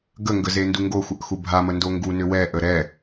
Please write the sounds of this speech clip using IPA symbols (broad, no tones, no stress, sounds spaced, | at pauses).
ɡ ə ŋ ɡ ə z e n d u ŋ ɡ o xʷ ə ʔ x u bʱ a m ə n d o ŋ ɡ u n ʏ w ɛ ʔ ə ɾ ɛ